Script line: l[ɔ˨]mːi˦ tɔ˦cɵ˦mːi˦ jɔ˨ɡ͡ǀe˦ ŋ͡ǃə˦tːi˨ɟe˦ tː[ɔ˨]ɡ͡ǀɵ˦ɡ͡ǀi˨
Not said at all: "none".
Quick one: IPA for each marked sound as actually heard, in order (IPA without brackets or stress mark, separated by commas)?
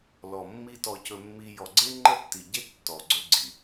ɔ˨, ɔ˨